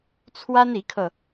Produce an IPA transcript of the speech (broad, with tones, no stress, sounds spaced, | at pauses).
t͡sʰ w a˥ n i˧˥ kʰ ɤ˧